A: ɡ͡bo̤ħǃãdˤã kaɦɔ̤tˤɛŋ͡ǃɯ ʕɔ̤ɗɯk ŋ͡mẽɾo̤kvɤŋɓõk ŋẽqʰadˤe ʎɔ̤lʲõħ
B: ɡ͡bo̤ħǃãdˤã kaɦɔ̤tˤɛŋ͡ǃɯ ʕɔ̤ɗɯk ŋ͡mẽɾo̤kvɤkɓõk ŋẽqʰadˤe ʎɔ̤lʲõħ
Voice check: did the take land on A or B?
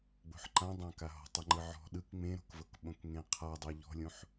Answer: B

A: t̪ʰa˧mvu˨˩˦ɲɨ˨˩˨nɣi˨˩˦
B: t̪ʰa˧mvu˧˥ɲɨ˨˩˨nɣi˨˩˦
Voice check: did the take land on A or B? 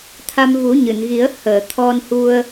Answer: A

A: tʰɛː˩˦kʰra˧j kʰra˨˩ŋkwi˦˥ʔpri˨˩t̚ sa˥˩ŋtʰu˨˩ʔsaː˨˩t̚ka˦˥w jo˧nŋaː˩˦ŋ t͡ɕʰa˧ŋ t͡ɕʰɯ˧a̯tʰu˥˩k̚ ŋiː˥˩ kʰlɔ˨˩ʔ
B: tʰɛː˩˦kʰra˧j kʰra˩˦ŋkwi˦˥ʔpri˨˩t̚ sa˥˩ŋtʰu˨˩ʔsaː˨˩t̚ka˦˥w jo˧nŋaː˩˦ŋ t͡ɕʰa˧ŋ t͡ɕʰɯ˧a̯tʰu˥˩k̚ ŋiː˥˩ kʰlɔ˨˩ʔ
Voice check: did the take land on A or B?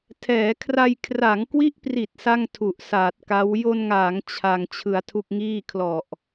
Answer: B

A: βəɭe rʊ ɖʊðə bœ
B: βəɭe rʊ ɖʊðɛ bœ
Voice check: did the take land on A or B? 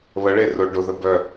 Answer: A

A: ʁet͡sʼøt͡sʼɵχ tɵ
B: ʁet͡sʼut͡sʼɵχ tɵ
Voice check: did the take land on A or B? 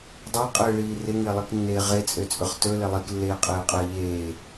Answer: A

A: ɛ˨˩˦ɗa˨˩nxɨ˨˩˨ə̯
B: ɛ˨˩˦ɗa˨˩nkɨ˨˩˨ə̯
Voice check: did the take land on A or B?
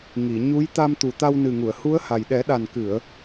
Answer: B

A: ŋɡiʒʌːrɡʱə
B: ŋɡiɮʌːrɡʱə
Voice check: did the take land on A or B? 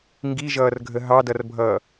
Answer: A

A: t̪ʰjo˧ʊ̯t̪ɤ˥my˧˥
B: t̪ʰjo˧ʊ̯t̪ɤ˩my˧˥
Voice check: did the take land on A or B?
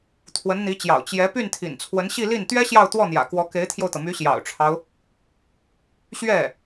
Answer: B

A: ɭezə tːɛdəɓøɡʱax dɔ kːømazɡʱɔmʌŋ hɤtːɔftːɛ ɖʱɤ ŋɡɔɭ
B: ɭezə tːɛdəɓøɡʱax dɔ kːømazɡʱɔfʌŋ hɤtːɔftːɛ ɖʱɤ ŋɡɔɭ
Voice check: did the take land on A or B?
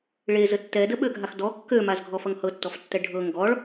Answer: B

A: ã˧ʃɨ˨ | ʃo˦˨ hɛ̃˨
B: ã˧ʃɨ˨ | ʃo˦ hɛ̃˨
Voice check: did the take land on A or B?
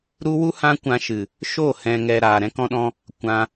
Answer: A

